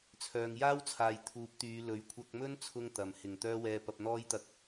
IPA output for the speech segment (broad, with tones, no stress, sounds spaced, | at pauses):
t͡sʰ œː˨ ŋ j aː˥ w t͡sʰ aː˨ j t̪ʰ uː˨˥ p̚ t̪ yː˨˧ l ɵ˨˧ ɥ kʷʰ ɐ˧ k̚ m ɵ˥ n t͡sʰ ʊ˧ ŋ t̪ ɐ˨ m h ɪ˨˩ ŋ t̪ œː˥ w ɛː˧ p ɐ˧ p̚ n̪ ɔː˥ j t̪ ɐ˧ k̚